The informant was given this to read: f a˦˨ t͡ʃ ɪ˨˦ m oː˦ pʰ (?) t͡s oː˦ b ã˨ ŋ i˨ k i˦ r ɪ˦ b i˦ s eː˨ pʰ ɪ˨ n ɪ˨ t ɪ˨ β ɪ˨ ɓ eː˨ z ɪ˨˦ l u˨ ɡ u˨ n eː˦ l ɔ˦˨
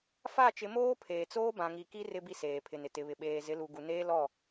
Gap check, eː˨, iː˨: eː˨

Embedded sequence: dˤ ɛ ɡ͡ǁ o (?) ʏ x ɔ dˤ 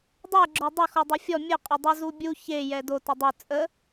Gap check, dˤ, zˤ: dˤ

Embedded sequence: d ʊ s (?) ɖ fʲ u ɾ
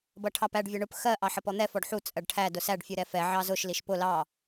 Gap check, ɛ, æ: æ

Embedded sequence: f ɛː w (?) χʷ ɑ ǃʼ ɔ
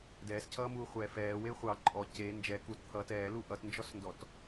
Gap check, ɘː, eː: eː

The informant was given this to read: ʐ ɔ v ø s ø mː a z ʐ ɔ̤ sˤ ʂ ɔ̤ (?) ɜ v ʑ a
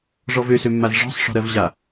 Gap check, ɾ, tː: ɾ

